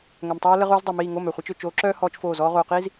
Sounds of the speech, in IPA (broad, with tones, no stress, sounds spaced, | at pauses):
ŋ œ˨ m tˤ oː˦ l ə˦ ʁ oː˦ z dˤ o˨ m iː˦˨ ŋ o˦˨ m œ˨ χʷ ɛ˦ t͡ʃ ø˨ t͡ʃ oː˨˦ ǁ œː˦ h ɔː˦ t͡ʃ f oː˦˨ z ɔː˦ ʁ oː˨ q iː˦ z